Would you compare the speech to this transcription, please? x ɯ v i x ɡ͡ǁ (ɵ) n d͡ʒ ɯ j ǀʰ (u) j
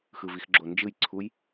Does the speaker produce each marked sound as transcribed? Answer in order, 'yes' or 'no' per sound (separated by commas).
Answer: no, yes